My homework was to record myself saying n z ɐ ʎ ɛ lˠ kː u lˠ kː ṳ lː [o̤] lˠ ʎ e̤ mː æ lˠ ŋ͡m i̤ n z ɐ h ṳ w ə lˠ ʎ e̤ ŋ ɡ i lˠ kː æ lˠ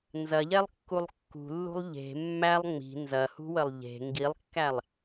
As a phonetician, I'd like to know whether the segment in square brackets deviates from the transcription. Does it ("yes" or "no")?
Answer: yes